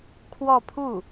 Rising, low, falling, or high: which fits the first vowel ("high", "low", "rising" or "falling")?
falling